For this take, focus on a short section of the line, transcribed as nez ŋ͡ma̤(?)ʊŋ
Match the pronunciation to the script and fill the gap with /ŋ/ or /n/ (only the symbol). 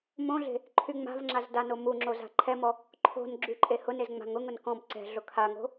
ŋ